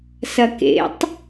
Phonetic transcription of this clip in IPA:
s ɐ k ḛ tˤ

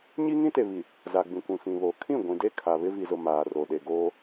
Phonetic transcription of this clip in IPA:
ɲ i˦ ŋ ĩ˦ t e˨ β i˨ | z a˨ ɡ͡b ĩ˨ kʷ ĩ˨ f ĩ˨ β o˨ kʰ ĩ˦˨ ɡʷ ĩ˨ d e˦ kʰ a˨ β ɪ˦ v i˨ z ʊ˨ m aː˨ r o˨ ɗ e˨ ɡ oː˦

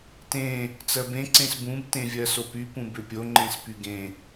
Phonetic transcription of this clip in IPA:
t ẽ | t͡s ɜ b ẽ ǀ ẽ s b ũ b t ẽ vʲ ɜ s o p y p ũ b ʏ pʲ o ŋ͡ǃ ẽ s p y ɡ ẽ

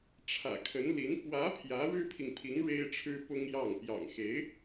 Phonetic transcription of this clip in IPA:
ʈ͡ʂʰ ä̰˨˩ kʰ ə˧˥ n l i˧˥ n k w ä˧˥ pʰ j ä˧˥ ɻ ɻ̩˥ pʰ i˨ ŋ pʰ i˧˥ ŋ ɻ e˥ ɪ̯ ʈ͡ʂʰ ɻ̩˥ p ʊ˥ ŋ j ɑ˥˩ ŋ p j ɑ̰˨˩ ŋ x e˧˥ ɪ̯

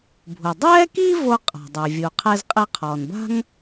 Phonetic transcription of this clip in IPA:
bʱ u˩ dˤ ɛː˥ k i˥ v o˥ qʼ a̤˩ dˤ ɛ˩ vʲ u˩ qʰ ɛ˥ z qʼ e˥ qʰ ɔː˩ n b a̤˥ ŋ

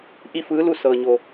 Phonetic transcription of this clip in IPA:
ʔ i˥˨ f ɯː˧˥ l u˥˨ s ɤː˧ ɲ o˧

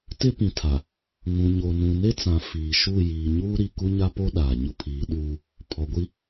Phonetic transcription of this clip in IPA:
t ɪ˦ p ĩ˨ tʰ a˨ | ŋ ũ˨ ɲ o˨ n ũ˨ n e˦ t͡s ã˨ f iː˨ ʃ u˦˨ j iː˨ ɲ uː˦ ɾ i˨ k u˦ ɲ a˦ p o˦ ɗ aː˨ ɲ ʊ˦ pʰ iː˨˦ ɗ uː˦ | pʰ ɔ˨ ɡʷ i˦

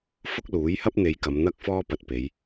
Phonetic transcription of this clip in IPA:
f ʊ˥ k̚ l uː˨˥ j h ɐ˥ p̚ n̪ e˨˧ j k ɐ˨˧ m n̪ ɐ˥ k̚ f ɔː˥ p ɐ˧ t̚ p e˨˧ j

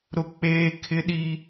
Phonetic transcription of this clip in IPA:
ɾ ʊ˦ k͡p eː˦ kʰ ɪ˦ ɗ i˦

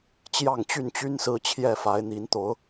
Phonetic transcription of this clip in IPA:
t͡ɕ j ɑ˥˨ ŋ t͡ɕ y˥˨ n t͡ɕ y˦ n s ɹ̩˦ t͡ɕʰ j ɛ˥˨ f a˨˦ ɪ̯ n̪ i˨˦ n t̪ o˨˦ ʊ̯

